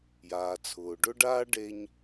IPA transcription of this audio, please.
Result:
j aː˩ t͡sʰ ʊː˩ ɖ ʊ˥ ɖ aː˥ ɖ e˧ ɲ

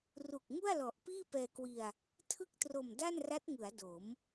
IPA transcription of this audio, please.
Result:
r u˨˩ k̚ ŋ u˥˩ a̯ l ɔ˨˩ ʔ p iː˥˩ p ɛː˧ k w i˧ a̯ | tʰ ɯ˥˩ k̚ t r o˨˩ m d a˥˩ n r a˦˥ t̚ ŋ ɯ˩˦ a̯ d o˩˦ m

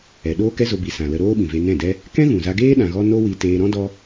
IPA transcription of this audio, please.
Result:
ɛ˧ ɗ oː˦ k ɛ˦ z o˧ b i˨ s ã˨ l ə˧ ɾ oː˦ ɓ ĩ˨ v e˧ n ɛ̃˦˨ d ɛ˦ | k ɛ̃˦ ɣ ũ˨ z a˧ ɡ eː˦ ɗ ã˧ ɣ ɔ˦ n o˦ w i˧ t eː˧ ɾ ɔ̃˦ d ɔ˦

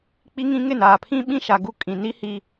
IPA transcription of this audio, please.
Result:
k͡p i˦ ŋ ĩ˦ ŋ ɪ˦˨ n aː˨ pʰ ĩ˦ ɓ ĩ˦ ʃ a˨ ɡ u˦ kʼ ĩ˨ n i˦ h i˦

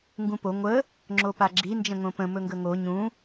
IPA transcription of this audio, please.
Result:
ŋ ɡ ũ p o ŋʷ ə | ŋ͡ǁ o p a ɡ͡ǁ i n d͡ʒ ə̃ ŋ õ p ə̃ m ɵ ŋ ɡ ə ŋ o ɲ ũ

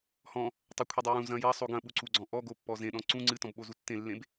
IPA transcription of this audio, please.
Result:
h ɔ̃ | tˤ ɨ kʷʰ i dˤ u j ũ z ɐ̃ j ɐ sˤ o ɡ ɐ̃ ɓ u ǀ u ɡ͡ǀ ɔ̃ ʔ ɔ ɡ o pː ɔ z ẽ ɗ ɔ̃ ǀ ũ ŋ͡ǀ ɨ t ɔ̃ b ɓ o z u tː ẽ lː ẽ b

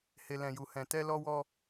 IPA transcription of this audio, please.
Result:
h e˧ l ɛ̃˧ j u˧ h ɛ̃˧ t ɛ˦ l ɔ˦ w ɔ˦

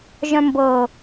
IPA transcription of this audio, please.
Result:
ʒ œ̃ m b ɤ

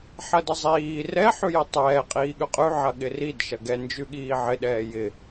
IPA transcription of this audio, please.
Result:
ħ ɐ d ɐ zˤ iː r ɛ ħ ʉ j ɛ tˤ ɛː qʼ iː ɠ ʉ qʼ ʉ ʕ ɐ ɠ ɪ r i d ʃ ɐ ɡ ɛ n d͡ʒ ʉ ɠ iː ʕ ɪ ɗ ɛː j ɪ

